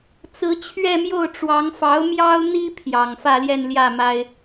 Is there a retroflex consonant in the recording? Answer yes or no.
yes